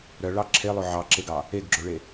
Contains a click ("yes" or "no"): yes